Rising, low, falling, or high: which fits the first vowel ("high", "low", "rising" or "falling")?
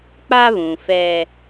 high